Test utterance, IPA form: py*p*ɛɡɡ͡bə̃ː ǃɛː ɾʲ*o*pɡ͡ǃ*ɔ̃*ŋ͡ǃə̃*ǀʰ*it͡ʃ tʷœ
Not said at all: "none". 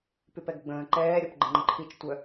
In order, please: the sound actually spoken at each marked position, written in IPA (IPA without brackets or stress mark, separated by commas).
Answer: p, ɔ, ə̃, ǃʰ